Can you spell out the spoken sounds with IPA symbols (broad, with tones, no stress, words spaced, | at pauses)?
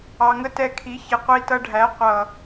ɑ˨ŋə˦tɛ˧kʰi˨˦ çɪ˨qʷi˧tʌ˧ɖʱæ˨˦ qʷʌ˨